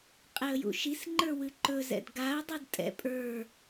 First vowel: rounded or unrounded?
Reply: unrounded